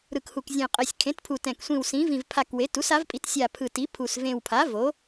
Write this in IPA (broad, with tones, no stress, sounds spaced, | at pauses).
ɾ ɯ˨˩ k h u˨˩ k zʲ ẽ˨˩ qʼ ɛ˨˩ sʲ kʰ ẽ˩˥ t pʰ u˨˩ t ɛ̃˨˩ k sʷ ĩ˨˩ w s ĩ˩˥ v ĩ˨˩ v pʰ a˨˩ k w e˩˥ t u˩˥ s a˩˥ v pʼ i˩˥ t sʲ a˨˩ pʰ ɯ˨˩ t i˩˥ pʰ u˨˩ s v ẽ˨˩ w pʰ a˩˥ v o˩˥